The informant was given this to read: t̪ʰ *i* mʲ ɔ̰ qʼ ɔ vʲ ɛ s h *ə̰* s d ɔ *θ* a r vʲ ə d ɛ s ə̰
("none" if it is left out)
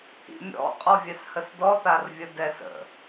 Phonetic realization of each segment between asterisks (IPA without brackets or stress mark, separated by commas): ḭ, ə, θ